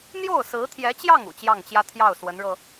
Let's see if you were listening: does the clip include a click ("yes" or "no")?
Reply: no